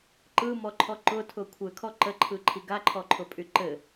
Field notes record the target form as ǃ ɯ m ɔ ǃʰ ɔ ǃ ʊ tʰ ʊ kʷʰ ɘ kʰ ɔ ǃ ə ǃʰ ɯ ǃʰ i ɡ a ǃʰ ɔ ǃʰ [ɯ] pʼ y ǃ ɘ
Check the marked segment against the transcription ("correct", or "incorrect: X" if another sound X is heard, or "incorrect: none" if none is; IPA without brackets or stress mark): incorrect: ʊ